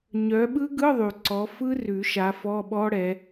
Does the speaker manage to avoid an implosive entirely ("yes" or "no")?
no